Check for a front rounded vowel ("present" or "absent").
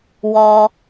absent